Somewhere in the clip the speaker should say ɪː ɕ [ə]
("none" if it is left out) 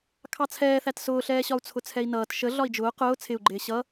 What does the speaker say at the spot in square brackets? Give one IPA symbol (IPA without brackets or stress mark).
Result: ʌ